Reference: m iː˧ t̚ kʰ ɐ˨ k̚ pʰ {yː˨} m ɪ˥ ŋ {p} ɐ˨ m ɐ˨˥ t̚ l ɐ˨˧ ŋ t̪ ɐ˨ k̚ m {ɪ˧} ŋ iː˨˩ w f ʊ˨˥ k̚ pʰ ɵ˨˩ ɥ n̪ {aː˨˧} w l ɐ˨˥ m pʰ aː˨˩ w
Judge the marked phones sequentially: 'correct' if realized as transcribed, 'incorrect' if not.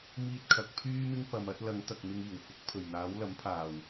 incorrect: yː˥, correct, correct, incorrect: aː˨˥

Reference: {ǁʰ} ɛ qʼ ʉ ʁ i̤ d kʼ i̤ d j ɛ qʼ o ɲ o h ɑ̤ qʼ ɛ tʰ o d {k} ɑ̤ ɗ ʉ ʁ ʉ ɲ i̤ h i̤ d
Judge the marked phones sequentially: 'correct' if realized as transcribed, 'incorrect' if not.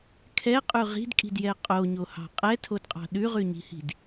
incorrect: kʰ, incorrect: qʼ

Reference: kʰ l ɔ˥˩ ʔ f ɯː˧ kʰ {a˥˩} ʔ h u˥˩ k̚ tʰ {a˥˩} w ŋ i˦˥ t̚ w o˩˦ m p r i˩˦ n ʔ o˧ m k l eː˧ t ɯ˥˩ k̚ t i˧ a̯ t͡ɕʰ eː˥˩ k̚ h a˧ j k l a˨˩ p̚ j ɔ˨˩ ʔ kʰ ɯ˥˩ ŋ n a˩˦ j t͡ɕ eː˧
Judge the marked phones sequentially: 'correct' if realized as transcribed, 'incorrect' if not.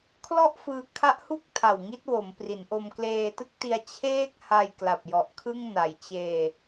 incorrect: a˦˥, incorrect: a˨˩

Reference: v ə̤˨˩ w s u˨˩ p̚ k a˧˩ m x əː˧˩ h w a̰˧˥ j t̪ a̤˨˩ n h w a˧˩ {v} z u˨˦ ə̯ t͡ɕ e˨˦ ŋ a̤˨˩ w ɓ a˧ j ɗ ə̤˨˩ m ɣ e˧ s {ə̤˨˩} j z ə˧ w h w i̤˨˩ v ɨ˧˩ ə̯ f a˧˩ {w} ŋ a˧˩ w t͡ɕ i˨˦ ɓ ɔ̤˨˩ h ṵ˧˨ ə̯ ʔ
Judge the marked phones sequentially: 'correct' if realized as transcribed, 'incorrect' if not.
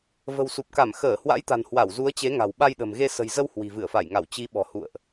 incorrect: w, correct, incorrect: j

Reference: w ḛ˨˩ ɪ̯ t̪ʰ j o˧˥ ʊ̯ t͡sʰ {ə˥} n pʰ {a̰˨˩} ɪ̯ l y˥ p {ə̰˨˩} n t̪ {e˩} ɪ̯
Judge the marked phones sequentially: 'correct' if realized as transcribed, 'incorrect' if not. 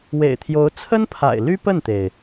correct, correct, incorrect: ə˥˩, correct

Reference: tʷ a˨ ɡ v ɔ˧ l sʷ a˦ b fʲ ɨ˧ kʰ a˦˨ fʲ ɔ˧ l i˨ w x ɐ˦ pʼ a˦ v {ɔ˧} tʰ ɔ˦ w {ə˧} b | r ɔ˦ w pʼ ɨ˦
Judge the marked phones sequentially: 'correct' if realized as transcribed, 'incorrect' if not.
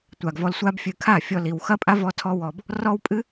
incorrect: ɔ˦, incorrect: ɔ˧

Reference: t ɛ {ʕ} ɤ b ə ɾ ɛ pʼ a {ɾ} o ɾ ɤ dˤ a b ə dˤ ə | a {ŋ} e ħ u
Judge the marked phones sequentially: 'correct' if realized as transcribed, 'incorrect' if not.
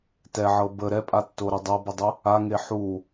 correct, incorrect: tː, correct

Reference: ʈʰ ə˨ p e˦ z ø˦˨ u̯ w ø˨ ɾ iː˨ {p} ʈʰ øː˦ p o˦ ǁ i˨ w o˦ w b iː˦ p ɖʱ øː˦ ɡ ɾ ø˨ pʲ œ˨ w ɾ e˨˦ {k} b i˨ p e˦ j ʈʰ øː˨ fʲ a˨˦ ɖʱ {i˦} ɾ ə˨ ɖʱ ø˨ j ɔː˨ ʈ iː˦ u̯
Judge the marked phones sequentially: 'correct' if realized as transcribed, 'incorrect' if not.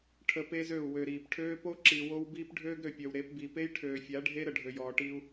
correct, incorrect: p, incorrect: e˦

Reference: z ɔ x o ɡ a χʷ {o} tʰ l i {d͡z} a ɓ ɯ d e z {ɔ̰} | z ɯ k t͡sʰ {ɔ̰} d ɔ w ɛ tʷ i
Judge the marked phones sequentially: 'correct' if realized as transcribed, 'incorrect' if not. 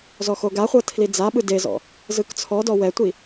incorrect: ɤ, correct, correct, incorrect: ɔ

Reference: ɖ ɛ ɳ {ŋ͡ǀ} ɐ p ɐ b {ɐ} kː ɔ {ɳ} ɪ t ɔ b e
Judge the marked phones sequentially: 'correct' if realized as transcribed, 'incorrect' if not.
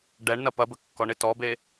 incorrect: n, incorrect: ə, correct

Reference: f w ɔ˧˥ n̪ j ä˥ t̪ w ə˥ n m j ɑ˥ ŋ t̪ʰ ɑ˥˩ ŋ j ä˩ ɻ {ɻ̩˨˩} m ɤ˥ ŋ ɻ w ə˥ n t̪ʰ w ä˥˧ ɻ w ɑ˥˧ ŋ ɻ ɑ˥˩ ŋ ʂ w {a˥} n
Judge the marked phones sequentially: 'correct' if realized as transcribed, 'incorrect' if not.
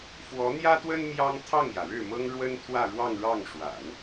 incorrect: ɻ̩˥˩, incorrect: a̰˨˩˦

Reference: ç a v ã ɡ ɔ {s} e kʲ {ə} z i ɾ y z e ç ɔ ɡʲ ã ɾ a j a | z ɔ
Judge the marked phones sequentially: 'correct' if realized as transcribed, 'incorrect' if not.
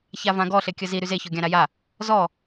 incorrect: ɬ, correct

